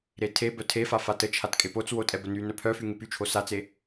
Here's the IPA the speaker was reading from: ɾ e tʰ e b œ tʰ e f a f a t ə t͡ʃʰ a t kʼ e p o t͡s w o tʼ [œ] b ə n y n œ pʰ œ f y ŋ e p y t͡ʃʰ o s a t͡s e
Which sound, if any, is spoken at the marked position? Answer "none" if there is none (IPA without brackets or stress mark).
ɛ